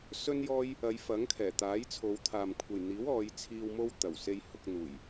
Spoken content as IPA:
s ɵ˥ n j ɔː˥ j | ɐ˨˧ j f ɐ˨˥ ŋ kʰ ɛː˨˩ t̪ aː˨˥ j t͡sʰ o˨˧ w t̪ʰ aː˨ m kʷʰ ɐ˨ j n̪ iː˨˥ w ɔː˨˧ j t͡sʰ iː˧ w m o˧ w t̪ ɐ˨˩ w s e˧ j h ʊ˨˥ k̚ n̪ uː˨˩ j

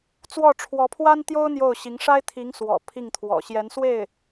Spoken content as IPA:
t͡s w ɔ˥˩ ʈ͡ʂʰ w ɔ˧˥ pʰ w a˥ n t̪ j o˥ ʊ̯ n̪ j o˥˩ ʊ̯ ɕ i˧˥ ŋ ʂ a˥ ɪ̯ t̪ʰ i˧˥ ŋ s w ɔ̰˨˩ pʰ i˥˩ ŋ t̪ʰ w ɔ̰˨˩ ɕ j ɛ˧˥ n s w e˥˩ ɪ̯

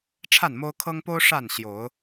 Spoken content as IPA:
ʈ͡ʂʰ a˥˨ n m o˦ ʊ̯ kʰ ɤ˦ ŋ p o˦ ʊ̯ ʂ a˥˨ n ɕ j o˨˦ ʊ̯

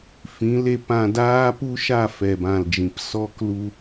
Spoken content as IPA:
f ĩ˨˦ l e˧ p ã˧ d aː˦ p u˦ ʃ a˦˨ f ɛ˨ b ã˨ l d͡ʒ ĩ˨ p s ɔ˧ k l u˧

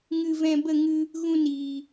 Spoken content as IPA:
ŋ ɨ˧ v ɛ̃˧ b ə˦˨ ŋ ɨ˧ | ɣ ũ˧ n iː˨

